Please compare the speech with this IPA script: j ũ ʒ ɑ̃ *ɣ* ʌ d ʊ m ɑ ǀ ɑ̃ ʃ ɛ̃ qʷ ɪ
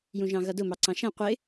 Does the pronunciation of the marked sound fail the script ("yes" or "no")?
no